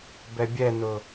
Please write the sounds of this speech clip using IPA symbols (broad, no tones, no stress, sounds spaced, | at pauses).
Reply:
b ɛ bʲ ɛ n ʊ